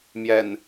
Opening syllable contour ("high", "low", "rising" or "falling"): low